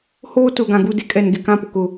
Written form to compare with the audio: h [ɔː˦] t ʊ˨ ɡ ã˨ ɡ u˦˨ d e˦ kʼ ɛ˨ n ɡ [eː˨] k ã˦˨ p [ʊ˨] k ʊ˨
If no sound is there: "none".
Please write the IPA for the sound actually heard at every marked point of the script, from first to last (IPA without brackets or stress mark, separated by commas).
oː˦, e˨, ʊ˨